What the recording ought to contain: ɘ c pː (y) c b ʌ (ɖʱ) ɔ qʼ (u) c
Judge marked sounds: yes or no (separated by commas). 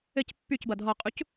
yes, no, yes